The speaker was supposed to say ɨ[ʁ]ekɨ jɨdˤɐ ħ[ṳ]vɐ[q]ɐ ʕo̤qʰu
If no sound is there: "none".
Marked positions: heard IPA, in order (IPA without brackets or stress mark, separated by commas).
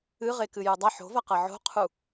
ʁ, o̤, q